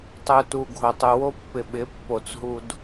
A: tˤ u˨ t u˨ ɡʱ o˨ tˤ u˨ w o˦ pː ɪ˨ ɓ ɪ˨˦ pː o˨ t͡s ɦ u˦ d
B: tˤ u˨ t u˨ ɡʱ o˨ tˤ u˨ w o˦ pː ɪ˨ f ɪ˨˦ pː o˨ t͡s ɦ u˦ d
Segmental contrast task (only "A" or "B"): A